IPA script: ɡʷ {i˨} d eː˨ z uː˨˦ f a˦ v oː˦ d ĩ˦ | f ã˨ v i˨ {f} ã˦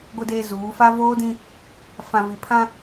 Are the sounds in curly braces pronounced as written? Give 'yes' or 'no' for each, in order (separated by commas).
no, no